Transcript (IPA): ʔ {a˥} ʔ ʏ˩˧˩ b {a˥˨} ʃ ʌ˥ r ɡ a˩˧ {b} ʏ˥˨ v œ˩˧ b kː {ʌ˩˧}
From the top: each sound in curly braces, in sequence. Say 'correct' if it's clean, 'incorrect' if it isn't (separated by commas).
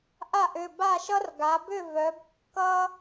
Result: incorrect, correct, correct, incorrect